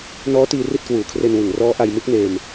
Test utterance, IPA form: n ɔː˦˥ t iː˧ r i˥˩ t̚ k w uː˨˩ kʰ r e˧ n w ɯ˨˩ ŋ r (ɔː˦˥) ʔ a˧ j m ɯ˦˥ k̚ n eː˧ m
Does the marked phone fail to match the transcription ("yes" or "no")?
no